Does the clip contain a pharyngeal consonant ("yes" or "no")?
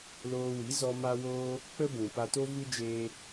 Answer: no